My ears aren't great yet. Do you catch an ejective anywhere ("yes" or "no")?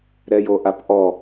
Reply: no